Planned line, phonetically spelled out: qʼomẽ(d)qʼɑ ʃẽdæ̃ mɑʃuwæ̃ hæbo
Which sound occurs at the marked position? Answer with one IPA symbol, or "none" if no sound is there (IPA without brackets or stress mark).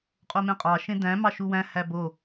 none